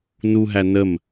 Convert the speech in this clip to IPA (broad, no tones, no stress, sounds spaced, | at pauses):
n u ɦ æ n ə m